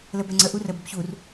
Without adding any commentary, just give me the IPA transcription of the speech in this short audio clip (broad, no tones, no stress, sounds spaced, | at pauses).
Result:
l ə b ɛ ŋ͡ǀ ə ʔ u r ə b ə b ç u r